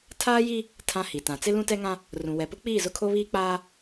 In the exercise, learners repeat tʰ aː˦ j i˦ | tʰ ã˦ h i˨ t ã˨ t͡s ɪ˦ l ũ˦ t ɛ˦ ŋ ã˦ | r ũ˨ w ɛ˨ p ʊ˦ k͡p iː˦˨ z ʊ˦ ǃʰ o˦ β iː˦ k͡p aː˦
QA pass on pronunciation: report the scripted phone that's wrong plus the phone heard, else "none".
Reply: ǃʰ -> kʰ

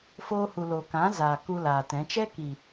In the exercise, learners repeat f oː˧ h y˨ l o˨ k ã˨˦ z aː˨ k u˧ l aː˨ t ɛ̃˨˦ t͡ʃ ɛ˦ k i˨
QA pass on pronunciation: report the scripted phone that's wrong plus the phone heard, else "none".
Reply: y˨ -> u˨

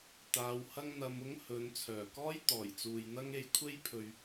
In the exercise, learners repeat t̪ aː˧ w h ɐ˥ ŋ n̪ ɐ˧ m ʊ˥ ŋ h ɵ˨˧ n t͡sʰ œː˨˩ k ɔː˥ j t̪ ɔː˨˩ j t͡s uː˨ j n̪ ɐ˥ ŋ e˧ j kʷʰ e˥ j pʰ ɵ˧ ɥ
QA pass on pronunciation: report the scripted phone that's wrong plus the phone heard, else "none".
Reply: none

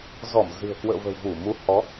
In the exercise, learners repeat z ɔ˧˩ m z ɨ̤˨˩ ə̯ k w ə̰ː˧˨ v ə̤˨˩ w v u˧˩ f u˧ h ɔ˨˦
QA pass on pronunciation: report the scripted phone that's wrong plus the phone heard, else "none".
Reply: f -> m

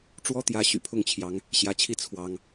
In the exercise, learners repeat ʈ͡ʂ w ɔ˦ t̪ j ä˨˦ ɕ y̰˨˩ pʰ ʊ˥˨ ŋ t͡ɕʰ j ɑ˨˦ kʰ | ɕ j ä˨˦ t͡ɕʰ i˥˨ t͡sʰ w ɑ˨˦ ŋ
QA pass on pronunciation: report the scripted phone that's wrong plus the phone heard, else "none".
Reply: kʰ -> ŋ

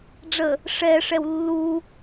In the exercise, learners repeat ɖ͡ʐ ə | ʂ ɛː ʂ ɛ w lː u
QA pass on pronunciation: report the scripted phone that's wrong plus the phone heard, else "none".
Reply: none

